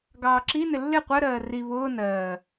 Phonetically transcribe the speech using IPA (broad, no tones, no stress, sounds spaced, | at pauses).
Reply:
ɡ ɑː ǁ i n ɪ lː ɪ qʷ ɜ ɾ ɜː r i β ʊː n ɜː